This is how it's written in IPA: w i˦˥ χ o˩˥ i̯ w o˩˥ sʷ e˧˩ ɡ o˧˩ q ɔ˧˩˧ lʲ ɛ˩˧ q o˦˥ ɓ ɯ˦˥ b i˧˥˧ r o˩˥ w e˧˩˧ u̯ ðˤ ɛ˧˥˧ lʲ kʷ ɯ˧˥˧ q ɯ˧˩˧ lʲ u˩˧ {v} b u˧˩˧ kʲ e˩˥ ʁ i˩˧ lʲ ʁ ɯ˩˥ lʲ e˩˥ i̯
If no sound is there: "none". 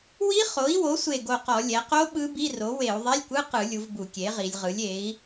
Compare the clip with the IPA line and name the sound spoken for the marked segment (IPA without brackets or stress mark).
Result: v